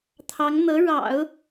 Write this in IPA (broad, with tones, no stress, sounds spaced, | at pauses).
t̪ʰ ɑ˧˥ ŋ n̪ ɤ˧˥ ɻ ɑ̰˨˩˦ ʊ̯